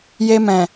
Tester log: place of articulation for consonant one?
palatal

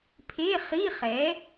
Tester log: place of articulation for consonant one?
labial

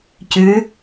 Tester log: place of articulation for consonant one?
palatal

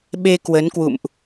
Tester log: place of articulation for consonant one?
labial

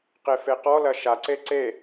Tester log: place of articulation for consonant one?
uvular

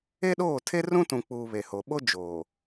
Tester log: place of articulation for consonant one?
alveolar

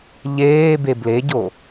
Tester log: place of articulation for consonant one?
palatal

